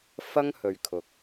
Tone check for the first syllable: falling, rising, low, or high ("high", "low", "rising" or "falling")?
high